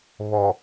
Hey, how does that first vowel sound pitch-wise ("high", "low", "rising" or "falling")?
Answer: low